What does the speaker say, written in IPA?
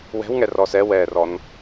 w ɛ̤ w ŋ ɛ r ɔː s ɛ w ɛː r ɔ n

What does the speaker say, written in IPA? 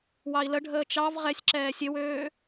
w ɑ i̯ l ə ɖʱ əː t͡ʃ ɑ v ʁ ɛ sʲ ǁ ɛː sʲ ɘ w øː

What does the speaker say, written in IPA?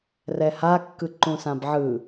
r ɛ h a kː ɯ ǃ ũ s ã b ʕ ɯ

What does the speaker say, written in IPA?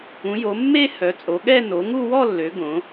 ũ˨˦ j o˨˦ mː e˥˧ h œ˨˦ t͡sʼ o˨˦ ɠ ɛ˥˧ n o˨˦ ŋ u˥˧ w ɔ˥˧ lː ø˨˦ ɡ õ˨˦

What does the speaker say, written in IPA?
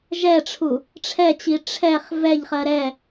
ʒ ɛ ʈ͡ʂʰ u | ʈ͡ʂʰ ɛ t͡ɕ i ʈ͡ʂʰ ɛ χ v ɛ ʎ χ ɜ ɾ ɛ

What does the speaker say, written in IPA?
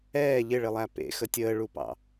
ɛː ʎ ɪ ɭ ɪ lˠ æ p ḛ x ə tʲ əː ɭ u p ɑ̰

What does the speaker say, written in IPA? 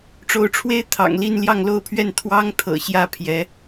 ʈ͡ʂ o˨˦ ʊ̯ ʈ͡ʂʰ w e˦ ɪ̯ t̪ʰ ɑ̰˨˩ ŋ l i˥˨ n l j ɑ˥˨ ŋ l o˥˨ ʊ̯ pʰ ɥ ɛ˥˨ n t̪ʰ w ɑ˦ ŋ t̪ʰ ɤ̰˨˩ ɕ j ä˥˨ pʰ j ɛ˨˦

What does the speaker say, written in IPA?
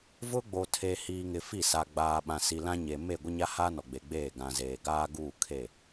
v ʊ˦ ɡ͡b o˨ tʰ e˨ h iː˨ ŋ ɪ˨ f i˦˨ s a˨ ɡ͡b aː˨ ɓ ã˨ s i˨ l ã˦ ɲ e˨ m e˦˨ ɡʷ ɪ˦ ɲ a˦ h a˦ n ɔ˨ ɡ͡b e˨ ɡ͡b eː˦˨ ɡ ã˨ z eː˨ ɡ aː˦ ɡ uː˦˨ kʰ e˦˨

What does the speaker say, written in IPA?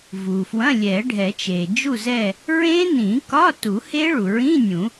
v u˩ f w ɐ̃˧˥˧ lʲ ɛ˨˩˦ ɖʱ ɛ˨˩˦ t͡ʃ e˩ d͡ʒ u˦˨ z ɛ˦˨ | ɹ ẽ˦˥ n ĩ˨˩˦ k ɒ˧˥˧ t u˨˩˦ h e˦˥ ɭ u˩ ɹ ĩ˧˥˧ nʲ ũ˨˩˦

